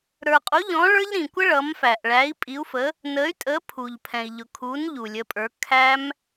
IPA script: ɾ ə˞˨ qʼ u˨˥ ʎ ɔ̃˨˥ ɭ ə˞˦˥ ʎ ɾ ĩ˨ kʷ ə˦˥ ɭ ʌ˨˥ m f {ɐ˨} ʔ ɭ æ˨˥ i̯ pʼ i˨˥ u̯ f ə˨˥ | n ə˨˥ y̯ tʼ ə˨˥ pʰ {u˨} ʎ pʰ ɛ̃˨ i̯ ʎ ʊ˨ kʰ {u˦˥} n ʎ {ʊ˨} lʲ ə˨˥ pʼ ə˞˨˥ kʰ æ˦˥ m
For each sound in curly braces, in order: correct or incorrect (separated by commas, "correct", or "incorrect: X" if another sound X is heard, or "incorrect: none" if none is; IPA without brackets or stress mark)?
incorrect: æ˨, correct, incorrect: u˨˥, incorrect: u˨